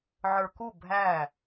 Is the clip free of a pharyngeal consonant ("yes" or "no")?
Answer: no